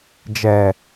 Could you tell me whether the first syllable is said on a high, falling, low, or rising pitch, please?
low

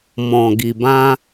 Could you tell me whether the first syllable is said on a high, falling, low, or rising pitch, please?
low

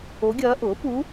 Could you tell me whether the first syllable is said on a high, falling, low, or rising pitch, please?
rising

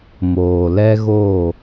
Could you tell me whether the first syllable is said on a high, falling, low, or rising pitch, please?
low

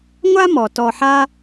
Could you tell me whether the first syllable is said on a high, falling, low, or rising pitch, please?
high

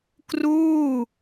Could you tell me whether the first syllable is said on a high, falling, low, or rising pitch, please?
falling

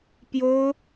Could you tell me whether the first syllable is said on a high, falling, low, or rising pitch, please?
high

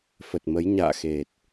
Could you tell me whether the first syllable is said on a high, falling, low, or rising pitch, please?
low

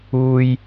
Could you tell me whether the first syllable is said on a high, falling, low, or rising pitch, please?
high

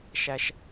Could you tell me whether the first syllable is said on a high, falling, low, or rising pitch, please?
high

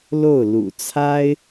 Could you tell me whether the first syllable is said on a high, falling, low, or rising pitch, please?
falling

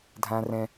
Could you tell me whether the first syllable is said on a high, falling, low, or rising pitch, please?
high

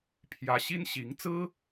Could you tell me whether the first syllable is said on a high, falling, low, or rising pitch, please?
rising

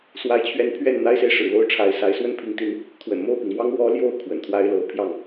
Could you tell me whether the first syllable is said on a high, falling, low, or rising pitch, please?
rising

